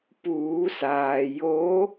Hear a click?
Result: no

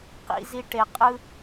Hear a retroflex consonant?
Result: yes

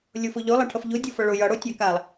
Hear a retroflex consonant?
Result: yes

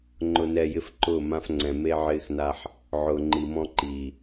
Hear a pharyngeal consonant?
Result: yes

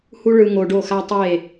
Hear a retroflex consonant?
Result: yes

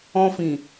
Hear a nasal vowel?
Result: yes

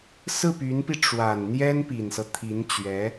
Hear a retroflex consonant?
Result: yes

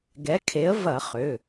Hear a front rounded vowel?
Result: yes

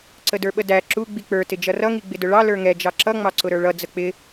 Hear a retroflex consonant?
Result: yes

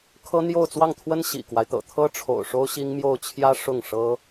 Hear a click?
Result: no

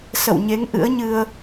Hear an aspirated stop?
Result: no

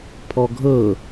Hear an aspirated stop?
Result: yes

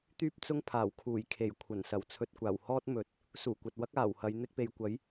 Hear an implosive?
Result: no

